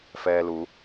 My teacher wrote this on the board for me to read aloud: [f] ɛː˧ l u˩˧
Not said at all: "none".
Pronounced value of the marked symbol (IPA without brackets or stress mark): f